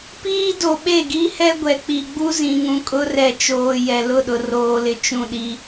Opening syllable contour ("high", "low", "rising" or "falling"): high